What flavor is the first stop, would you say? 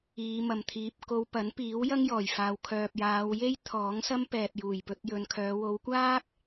aspirated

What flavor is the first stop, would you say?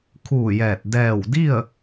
aspirated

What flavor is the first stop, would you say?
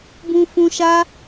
plain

